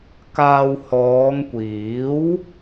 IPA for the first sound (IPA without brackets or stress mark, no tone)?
k